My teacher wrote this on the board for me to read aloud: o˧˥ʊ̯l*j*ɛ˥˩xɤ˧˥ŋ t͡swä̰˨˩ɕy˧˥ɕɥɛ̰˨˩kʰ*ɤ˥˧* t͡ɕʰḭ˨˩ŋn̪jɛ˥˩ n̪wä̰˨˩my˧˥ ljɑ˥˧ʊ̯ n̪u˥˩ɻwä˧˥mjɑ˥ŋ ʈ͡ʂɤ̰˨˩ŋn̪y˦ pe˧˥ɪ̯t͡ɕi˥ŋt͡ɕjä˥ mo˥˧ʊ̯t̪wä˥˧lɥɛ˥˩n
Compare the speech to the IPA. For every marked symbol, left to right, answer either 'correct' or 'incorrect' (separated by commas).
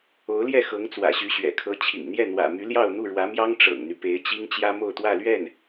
correct, incorrect